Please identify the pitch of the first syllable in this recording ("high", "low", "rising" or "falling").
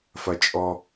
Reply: low